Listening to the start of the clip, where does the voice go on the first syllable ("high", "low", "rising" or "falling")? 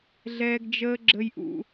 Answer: high